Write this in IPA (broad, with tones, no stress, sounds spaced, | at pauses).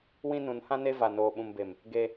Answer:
w ĩ˦ n ũ˨˦ n h ã˦ n e˦ v a˨ n oː˨ ɓ ũ˨ m b e˨ m | ɡ e˦